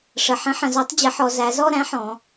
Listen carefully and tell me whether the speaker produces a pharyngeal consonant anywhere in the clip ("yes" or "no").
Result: yes